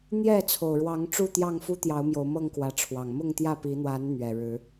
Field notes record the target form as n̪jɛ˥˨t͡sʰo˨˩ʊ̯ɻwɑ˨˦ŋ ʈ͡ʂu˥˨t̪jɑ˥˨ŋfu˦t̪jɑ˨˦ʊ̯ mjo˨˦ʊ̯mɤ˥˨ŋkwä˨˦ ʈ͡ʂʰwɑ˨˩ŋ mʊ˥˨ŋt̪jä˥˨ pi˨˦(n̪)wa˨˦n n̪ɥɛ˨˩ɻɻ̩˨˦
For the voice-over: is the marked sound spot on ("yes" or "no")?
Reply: yes